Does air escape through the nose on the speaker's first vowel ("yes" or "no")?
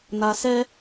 no